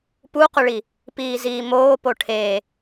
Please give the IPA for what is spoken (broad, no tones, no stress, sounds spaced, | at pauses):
p u q ʊ ɭ i | p iː z iː m oː p o ʈʰ e